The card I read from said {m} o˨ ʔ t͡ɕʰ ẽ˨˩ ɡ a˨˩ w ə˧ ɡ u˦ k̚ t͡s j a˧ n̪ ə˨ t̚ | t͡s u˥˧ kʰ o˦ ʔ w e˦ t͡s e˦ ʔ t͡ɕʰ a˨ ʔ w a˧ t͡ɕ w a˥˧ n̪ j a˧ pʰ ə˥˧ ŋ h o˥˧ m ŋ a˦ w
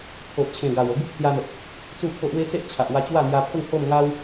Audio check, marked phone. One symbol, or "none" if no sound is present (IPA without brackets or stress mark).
pʰ